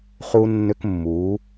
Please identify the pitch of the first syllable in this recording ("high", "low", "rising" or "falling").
high